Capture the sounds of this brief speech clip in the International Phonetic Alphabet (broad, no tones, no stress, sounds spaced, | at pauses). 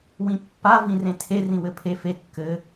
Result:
w ĩ pː a v ĩ r ẽ tʰ e r ĩ w ɘ pʰ e f e kː ɘ